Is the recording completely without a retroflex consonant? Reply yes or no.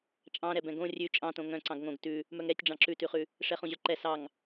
no